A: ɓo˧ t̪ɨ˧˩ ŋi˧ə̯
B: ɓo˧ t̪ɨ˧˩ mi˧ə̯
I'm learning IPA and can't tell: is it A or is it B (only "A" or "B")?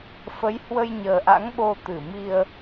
B